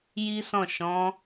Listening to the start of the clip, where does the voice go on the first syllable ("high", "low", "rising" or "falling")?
high